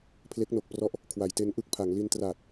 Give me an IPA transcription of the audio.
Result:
pʰ l e˦˥ k̚ n o˨˩ k̚ p r ɔ˦˥ ʔ | kʰ w a˩˦ j t e˦˥ n ʔ ɯ˥˩ k̚ pʰ a˩˦ ŋ l i˧ n t r aː˨˩ t̚

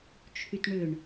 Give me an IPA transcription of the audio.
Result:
t͡ʃʰ y t ɳ ʏ ɳ

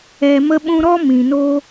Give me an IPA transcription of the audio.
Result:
ɛ˨ m ə˧ ɓ ũ˧ ɾ ɔ˦ m ĩ˨ n o˦

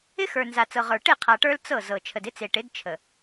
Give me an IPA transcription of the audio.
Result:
ɪ˦ x ə˞˨ n z a˨ t͡s ɤ˨ ʁ ə˞˨ ʈ e˦˨ qʰ a˨ ʈ ə˞˦ l t͡s ɤ˦˨ z ɤ˨ t͡ʃʰ ə˨ d ɪ˦ t͡s e˨ ʈ ɪ˨˦ d t͡ʃʰ ə˨

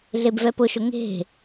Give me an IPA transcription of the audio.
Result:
ɮ e b v ɛ p ʊ ʃ ʊ ŋ e̤

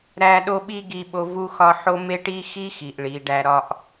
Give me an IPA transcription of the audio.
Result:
ɾ æ˦ ɗ o˦ ɓ i˦ ɡ i˦ ɓ o˦ v u˦ x ɒ˦ ħ o˦ m e˦ ʈ i˦ x i˦ x i˨ ʔ ɭ i˨ ɖ æ˦ ɾ ɒ˦ ʔ

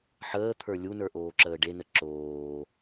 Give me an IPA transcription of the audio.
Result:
ħ əː t̪ʰ ə˞ lʲ u n ə˞ ʔ oː ǁ əː ɖ e n ə ǁ oː

